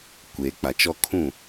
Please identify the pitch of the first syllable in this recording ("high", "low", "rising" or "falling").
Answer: low